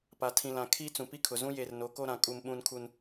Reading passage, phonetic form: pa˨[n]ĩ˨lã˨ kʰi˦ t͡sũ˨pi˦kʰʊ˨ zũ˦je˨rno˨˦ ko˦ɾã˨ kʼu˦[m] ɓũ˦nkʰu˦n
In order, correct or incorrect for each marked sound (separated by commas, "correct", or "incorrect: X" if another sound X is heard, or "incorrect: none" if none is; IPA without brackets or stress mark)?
incorrect: tʰ, correct